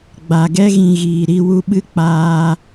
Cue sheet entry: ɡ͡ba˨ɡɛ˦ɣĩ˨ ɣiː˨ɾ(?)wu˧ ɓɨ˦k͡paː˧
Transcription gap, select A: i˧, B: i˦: A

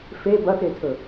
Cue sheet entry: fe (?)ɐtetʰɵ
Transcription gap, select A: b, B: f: A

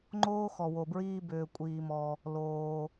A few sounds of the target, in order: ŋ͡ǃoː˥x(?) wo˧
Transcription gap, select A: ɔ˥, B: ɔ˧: B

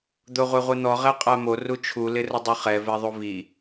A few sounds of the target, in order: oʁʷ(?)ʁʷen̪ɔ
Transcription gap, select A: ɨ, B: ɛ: B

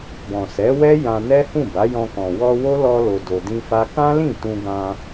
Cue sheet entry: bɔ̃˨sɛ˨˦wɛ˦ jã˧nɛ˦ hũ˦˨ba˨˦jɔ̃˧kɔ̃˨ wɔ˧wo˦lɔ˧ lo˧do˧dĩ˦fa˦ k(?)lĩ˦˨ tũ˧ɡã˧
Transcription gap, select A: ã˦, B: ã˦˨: A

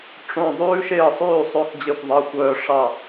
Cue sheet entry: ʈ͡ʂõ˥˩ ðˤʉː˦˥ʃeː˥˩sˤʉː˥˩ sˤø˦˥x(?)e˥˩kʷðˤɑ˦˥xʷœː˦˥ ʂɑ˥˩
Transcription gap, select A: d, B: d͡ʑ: B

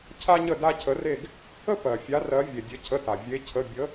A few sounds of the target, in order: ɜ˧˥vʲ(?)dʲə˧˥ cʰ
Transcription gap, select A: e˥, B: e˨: B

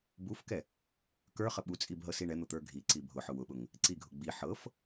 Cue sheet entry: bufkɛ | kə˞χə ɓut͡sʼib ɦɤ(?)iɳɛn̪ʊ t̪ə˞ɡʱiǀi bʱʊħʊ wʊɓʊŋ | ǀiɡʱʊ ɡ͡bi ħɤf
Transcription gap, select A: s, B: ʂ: A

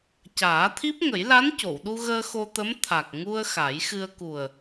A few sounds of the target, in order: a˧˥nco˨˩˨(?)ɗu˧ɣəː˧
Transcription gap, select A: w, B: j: A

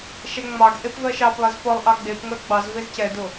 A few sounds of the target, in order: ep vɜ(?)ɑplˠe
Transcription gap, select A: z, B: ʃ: B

